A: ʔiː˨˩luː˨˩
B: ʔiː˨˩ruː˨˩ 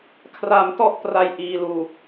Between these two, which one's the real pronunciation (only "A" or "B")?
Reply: A